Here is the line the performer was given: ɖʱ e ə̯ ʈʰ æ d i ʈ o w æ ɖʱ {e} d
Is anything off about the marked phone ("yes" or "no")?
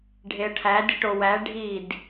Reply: yes